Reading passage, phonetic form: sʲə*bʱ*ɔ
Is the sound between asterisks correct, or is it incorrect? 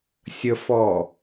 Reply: incorrect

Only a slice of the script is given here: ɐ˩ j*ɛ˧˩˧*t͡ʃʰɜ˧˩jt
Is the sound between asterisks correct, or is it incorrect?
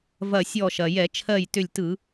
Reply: correct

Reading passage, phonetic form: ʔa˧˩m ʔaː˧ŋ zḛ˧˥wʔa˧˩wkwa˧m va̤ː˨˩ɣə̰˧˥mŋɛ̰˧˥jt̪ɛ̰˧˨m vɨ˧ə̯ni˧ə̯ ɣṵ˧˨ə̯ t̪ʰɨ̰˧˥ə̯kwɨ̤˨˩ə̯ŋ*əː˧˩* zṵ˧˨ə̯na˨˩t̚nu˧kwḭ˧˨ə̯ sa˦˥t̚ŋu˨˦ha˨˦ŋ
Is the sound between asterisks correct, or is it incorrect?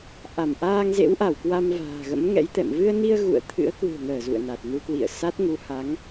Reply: correct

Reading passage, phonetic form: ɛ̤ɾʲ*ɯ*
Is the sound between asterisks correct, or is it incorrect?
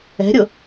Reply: incorrect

